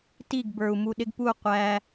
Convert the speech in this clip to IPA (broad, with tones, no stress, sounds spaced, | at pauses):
t i˦˨ ɡ b ə˞˨ u̯ m u˧ ɗ ɪ˦ ɡ p u˦˨ qʷ æ˧